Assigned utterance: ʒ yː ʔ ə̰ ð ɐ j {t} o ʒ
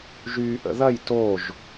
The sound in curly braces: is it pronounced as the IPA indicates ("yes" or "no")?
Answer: yes